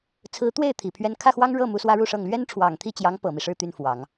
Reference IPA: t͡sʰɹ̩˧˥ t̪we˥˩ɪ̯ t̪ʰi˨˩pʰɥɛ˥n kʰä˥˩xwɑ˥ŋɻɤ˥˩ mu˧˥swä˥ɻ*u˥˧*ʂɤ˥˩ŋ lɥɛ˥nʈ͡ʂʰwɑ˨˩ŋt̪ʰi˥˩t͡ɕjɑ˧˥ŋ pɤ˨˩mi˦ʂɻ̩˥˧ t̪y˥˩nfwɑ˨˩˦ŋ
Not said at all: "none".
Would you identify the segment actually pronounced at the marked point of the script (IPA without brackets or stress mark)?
u˥˧